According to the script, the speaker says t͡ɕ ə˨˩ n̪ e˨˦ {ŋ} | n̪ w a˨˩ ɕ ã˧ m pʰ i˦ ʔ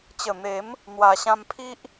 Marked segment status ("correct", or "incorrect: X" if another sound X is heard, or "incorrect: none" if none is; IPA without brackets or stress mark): incorrect: m